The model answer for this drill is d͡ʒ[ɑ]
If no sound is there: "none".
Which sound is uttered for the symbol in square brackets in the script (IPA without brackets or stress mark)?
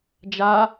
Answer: a